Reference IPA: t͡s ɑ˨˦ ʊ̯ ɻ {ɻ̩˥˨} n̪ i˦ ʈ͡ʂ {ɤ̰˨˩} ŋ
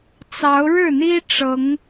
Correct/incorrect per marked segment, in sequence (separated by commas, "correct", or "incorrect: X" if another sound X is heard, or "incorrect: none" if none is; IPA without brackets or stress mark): correct, incorrect: ɤ˨˦